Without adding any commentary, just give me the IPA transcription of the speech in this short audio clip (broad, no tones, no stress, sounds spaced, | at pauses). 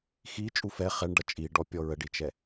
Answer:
x i t͡ʃʼ u f ɛ χ ɛ ɳ ɖ ʌ t͡ʃʼ i ɖ ɔ pʲ ɔ ɹ ə ɖ i t͡ʃ ɛ